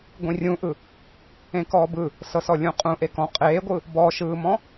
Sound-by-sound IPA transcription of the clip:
ɡʷĩrʲũʔɯ | ẽkɔːbɯ | sɤsɔlʲũqʼũ ʔekɔ̃ qʼeːɡʷɯ | bɔʃɯːmɔ̃

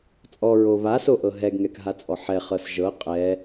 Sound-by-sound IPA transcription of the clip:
t͡sʼɔɹo βasoʔɤ ɦɛɡŋɛkɦat͡sʼɔ ħɛχɤs ʒɤ qʼɛ

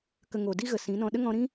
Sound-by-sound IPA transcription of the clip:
kə˨ŋo˨di˦ɣə˨ sĩ˨˦nɔ̃˧ ɗə˦ŋɔ̃˧ɾĩ˦

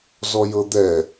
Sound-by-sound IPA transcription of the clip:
zɔjɤd̪ɛ

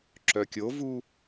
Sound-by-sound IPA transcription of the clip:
ǁœkʲovu

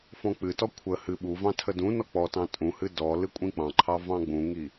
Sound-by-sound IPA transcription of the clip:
fɔ̃k͡pɨtɔ kʷʰə hɨ ɓuvɑ̃ tʰədũnɔ k͡pɔtɑ̃ tʼũhɨ dɔ lɨkʷʼĩk͡pɑ̃ǃʰɑ vɑ̃ɡ͡bũŋi

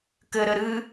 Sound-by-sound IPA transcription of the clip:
kɘɾɘ ɾɨ

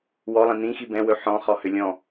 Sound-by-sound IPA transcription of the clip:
wɔlˠĩ nĩxi bɛ̃wɵ ħɔ̃χɔhʏ lʲɔ̃

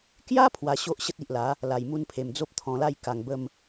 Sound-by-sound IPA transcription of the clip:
kja˦ pʰwa˧ɕo˦ʔ ɕə˦t̚i˨ʔla˨˦ | la˨˩jmu˧npʰe˨˩m d͡zo˦p̚t̪ʰɔ̃˧la˥˧j ka˨˩ŋbə˥˧m

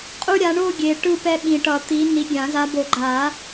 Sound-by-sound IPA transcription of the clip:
qʼu˦ɾʲa˨˦ɳo˥˨ɡʲe˨ ʈɯ˥˨pɛ˦ɓĩ˨ʈʌ˨˩˦ t̪i˨˦ni˨˦ɡʲã˨˩˦ za˨˦bo˨˩˦ɡ͡ǃa˨˩˦

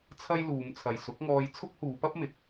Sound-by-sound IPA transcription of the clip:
t͡sʰɐ˥jluː˨˧m t͡sʰɐ˨jsʊ˨˥k̚ŋɔː˧j t͡sʰʊ˥k̚huː˨˧pɐ˥p̚mɪ˨˥k̚

